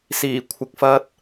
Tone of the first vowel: low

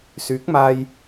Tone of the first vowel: rising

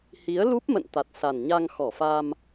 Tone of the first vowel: rising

